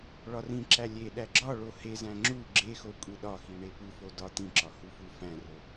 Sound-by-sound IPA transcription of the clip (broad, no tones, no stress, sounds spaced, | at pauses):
ɭ ɒ r ĩ ǁ æ lʲ e ɗ æ ɡ͡ǁ ɒ ɭ o h e z æ̃ ŋ͡ǁ u ɡ͡ǁ e x o kʷʼ i ɗ ɒ x i ɳ e p u f o d ɒ t̪ ĩ ǁ ɒ h u f u f æ̃ r o